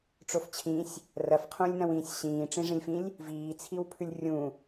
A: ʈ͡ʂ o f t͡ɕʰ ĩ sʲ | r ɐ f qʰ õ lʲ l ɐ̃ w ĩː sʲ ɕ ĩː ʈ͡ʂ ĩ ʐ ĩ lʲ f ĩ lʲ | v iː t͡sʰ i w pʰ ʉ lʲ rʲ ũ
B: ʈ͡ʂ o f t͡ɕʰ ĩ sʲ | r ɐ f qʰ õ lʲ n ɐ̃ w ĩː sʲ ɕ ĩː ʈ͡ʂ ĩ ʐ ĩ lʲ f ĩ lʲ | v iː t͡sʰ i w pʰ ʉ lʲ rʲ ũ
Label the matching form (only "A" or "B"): B